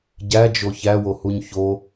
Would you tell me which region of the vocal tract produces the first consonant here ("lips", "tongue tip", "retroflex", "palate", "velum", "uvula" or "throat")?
palate